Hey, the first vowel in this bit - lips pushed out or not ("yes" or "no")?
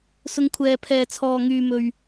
yes